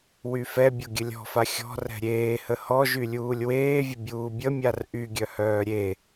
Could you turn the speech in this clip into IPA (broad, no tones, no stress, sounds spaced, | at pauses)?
w y f ɛ bʲ o ɡʲ ə lʲ ɔ̤ f a xʲ ɔ̤ r ɛ̤ ɾʲ eː h ə h ɔ ʒ y lʲ uː lʲ w eː vʲ ə bʲ uː bʲ ə mʲ a r ʔ y ɡʲ œ h œː ɾʲ e